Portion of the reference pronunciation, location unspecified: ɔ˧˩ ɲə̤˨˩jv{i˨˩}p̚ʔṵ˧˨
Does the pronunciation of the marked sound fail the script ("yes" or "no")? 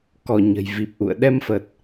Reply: no